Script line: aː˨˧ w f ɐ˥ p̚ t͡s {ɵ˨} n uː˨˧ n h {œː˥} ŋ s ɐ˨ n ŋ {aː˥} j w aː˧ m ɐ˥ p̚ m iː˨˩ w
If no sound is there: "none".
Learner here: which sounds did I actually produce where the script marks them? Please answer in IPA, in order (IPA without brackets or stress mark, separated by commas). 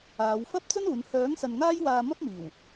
ɵ˥, œː˨˥, aː˥